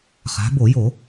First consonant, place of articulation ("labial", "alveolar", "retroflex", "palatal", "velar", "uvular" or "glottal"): uvular